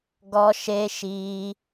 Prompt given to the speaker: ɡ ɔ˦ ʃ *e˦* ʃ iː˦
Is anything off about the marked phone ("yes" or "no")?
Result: no